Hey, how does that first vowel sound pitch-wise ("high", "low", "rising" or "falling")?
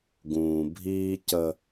low